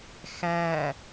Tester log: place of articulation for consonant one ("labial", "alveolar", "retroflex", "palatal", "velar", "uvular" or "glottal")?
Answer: velar